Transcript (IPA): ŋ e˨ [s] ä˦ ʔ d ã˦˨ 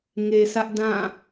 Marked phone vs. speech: correct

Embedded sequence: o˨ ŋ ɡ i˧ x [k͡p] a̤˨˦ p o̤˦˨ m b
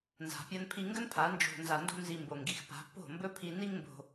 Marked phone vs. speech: incorrect: p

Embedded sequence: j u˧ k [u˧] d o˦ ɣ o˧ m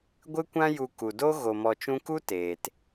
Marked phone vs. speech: incorrect: u˨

